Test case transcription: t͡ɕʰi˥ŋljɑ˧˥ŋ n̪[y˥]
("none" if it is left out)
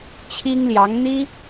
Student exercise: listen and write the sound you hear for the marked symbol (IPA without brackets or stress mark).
i˥